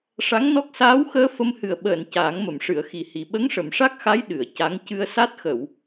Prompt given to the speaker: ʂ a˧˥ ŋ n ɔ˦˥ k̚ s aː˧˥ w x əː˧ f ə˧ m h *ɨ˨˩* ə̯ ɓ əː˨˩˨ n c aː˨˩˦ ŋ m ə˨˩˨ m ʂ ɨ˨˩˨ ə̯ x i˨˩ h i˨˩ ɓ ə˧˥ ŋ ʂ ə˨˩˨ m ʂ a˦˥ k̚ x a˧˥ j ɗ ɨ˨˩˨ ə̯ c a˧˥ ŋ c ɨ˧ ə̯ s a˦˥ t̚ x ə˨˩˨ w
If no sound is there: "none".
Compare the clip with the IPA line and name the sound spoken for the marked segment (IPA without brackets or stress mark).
ɨ˨˩